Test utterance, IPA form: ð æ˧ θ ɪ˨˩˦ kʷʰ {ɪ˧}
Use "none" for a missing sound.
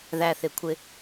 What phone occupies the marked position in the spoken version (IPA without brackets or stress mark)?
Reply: ɪ˧